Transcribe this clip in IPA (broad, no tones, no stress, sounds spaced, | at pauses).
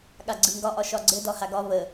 ɠ a ɡ͡ǀ ɯ ŋ ɡ ɒ ʔ ɒ ʃ ɒ ɡ͡ǀ ɘ d ɒ h a ɡ ɒ β ə